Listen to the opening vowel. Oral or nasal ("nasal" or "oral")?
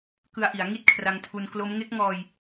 oral